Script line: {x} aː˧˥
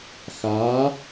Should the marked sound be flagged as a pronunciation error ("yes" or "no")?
no